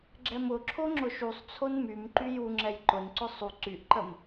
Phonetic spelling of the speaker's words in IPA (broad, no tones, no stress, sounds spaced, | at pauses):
ɡ͡ǁ ɛ m ʊ ǁʰ o ŋ͡ǁ ʊ ʃ u sˤ t͡sʰ o n m y m ǃ y j u ŋ͡ǁ ɛ j ǃ ʊ n ǀ ʊ sˤ u ǀ y ʔ ǃ ə m